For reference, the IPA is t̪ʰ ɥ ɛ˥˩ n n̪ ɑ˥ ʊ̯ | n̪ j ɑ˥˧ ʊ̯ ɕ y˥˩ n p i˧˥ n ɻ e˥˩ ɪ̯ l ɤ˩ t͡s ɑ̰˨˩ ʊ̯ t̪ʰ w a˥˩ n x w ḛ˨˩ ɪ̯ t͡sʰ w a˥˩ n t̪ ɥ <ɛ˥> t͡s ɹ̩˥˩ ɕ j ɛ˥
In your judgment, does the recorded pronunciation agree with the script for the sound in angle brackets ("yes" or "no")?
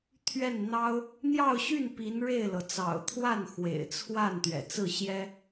no